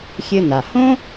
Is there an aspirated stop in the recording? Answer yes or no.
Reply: no